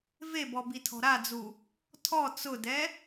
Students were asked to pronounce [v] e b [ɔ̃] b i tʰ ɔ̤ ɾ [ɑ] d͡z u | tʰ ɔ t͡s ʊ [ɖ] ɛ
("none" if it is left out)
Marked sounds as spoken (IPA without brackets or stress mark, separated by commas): v, ɔ, a, d